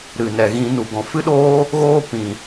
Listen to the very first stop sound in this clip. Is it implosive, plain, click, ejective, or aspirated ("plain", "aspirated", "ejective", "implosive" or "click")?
plain